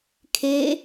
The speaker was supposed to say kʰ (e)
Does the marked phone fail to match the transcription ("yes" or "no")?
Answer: no